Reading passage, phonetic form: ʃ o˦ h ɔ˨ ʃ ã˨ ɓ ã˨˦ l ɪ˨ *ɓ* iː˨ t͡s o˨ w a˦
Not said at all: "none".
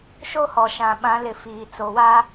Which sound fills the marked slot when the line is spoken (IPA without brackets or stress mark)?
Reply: f